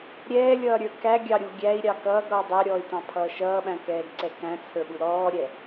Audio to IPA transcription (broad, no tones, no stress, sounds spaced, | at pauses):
ɾʲ ɛː lʲ ʌː ɾʲ ə˞ k æ ɡʲ ɑ ɾʲ u ɡʲ æ i̯ ɾʲ ɑ k ʌː ɡ ɾ ɔː dˤ æ ɾʲ ɔː y̯ t ɑ̃ pʰ ʌː ʃ ʌː ɓ æ̃ k ɛː ɡ ǀ ɛ k æ̃ t͡sʰ ə˞ ɓ u ɾ ɔː ɾʲ ɛ